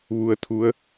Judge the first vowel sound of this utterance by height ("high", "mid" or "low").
high